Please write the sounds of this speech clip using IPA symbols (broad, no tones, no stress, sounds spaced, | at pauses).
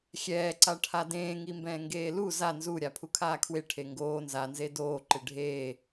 xʲ ɛː ǀ a ʈʰ a d ẽː ŋ i m b ɛ̃ː ŋ ɡ eː l u z a n z u ɾʲ a pʰ u kʰ aː kʰ w e ʈʰ e ŋ ɡ oː n z a n z e d oː ǃ ɪ ɖʱ eː